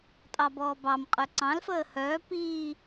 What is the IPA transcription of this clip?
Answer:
tʼ ɑ b ɔː b ɑ m qʼ œ ǀ ɑ̃ l f əː h œː p iː

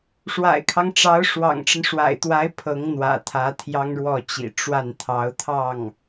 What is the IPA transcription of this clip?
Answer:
ʂ w a̰˨˩ ɪ̯ kʰ ɑ˦ ŋ ʈ͡ʂ ɑ˧˥ ʊ̯ ʂ w ɑ̰˨˩ ŋ ʈ͡ʂ ə˦ n ʂ w a̰˨˩ ɪ̯ t̪ w a˧˥ ɪ̯ pʰ ɤ˧˥ ŋ n̪ w ä̰˨˩ t̪ʰ ä˧˥ t̪ʰ j ɑ˥ ŋ ɻ w ɔ˥˩ t͡ɕ ḭ˨˩ ʈ͡ʂ w a˥˩ n t̪ʰ ɑ˧˥ ʊ̯ t̪ʰ ɑ˥˩ ŋ

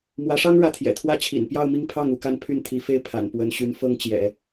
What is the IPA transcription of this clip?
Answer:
m w ä˧˥ ʂ ɑ˥ ŋ ɻ ä˥˩ t̪ʰ j ɛ̰˨˩ t̪ʰ w ä˥ t͡ɕʰ ḭ˨˩ n p j ɑ˥˧ ʊ̯ m i˥˧ ŋ pʰ ɑ˥˩ ŋ u˧˥ k a˥˧ n pʰ y˥˩ n t̪ʰ i˧˥ f e˥˩ ɪ̯ pʰ a̰˨˩ n p w ə˧˥ n ɕ y˧˥ n f ɤ˥ ŋ t͡ɕ j ɛ̰˨˩˦

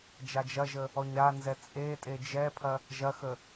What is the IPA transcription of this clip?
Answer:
d͡ʒ a d͡ʒ ɐ ʒ ə | ɔ ɲ ɾ a n z ɛ t͡sʼ e tʼ e d͡ʒ ɛ pʰ ɐ | ʒ ɐ x ə

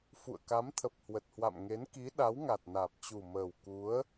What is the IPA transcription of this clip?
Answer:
f ṵ˧˨ ə̯ k a˨˦ m t̪ʰ ə˨˩ p̚ h w ə˨˩ t̚ h w a̰˧˨ m ŋ e˨˦ n k i˨˦ ɗ a˨˦ w ŋ a˨˩ t̚ n aː˨˩ p̚ t͡ɕ u˨˩ m əː˨˩ w k u˨˦ ə̯

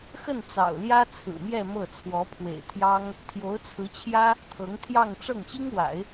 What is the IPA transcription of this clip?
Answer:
x ə˥˩ n t͡s ɑ̰˨˩ ʊ̯ l j ä˥ t͡sʰ ɹ̩˨˩ m j ɛ˥˧ m ɤ˥˩ t͡sʰ w ɔ˧˥ pʰ w ḛ˨˩ ɪ̯ t̪ʰ j ɑ˥ ŋ | t̪ʰ j o˧˥ ʊ̯ t͡sʰ ɹ̩˧˥ t͡ɕʰ j ä˥ | t̪ʰ ɤ˧˥ ŋ t̪ʰ j ɑ˥˧ ŋ ʈ͡ʂ ɤ˥˩ ŋ ɕ i˥ ŋ w a̰˨˩˦ ɪ̯

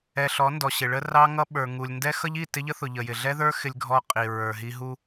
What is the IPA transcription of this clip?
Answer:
ɛ˨ ɬ ɔ˨˦ n d ɔ˨ ɕ ɪ˨ ɭ ə˦ r ɑ˦ ŋ ʌ˦ ɓ ə˞˨ ŋ u˨ lʲ n d ɛ˦ x ʌ˦ ʎ i˦˨ t ɪ˦ ʎ ə˦ θ ʊ˨ ʎ ə˨ j ɪ˨ ɮ ɛ˦ ð ə˞˦ x ɪ˦ lʲ ɡʱ ɔ˦ qʼ i˨ ɹ ə˞˨ ɦ i˦ ɦ u˦

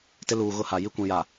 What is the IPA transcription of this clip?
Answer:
t ɪ˦ l uː˨ ɣ ʊ˦ h a˨ j i˦ kʷ ĩ˨ j a˨

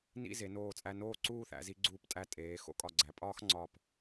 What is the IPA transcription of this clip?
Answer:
n ḭ˥˧ z e˩˧ n oː˧˩ t͡sʼ æ˧ n oː˥˧ ǀ uː˥˧ θ æ̰˩˧ z i˧ ɡ͡ǀ uː˧˩ p tʼ æ˧˩ tʼ eː˩˧ x o̰˥˧ kʼ ɒ˧˩ ɡ͡ǀ æ˩˧ pʼ ɒː˥ x ŋ͡ǀ ɒ˧˩ p

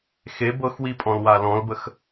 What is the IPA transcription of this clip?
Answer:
x e b ɤ x w i pʼ ɔ̃ l w a l ɔ̃ l b ə x

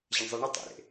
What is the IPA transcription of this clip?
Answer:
ʑ ɐ ɳ zˤ i ɳ ɨ tˤ ḛ ɾ ḛ

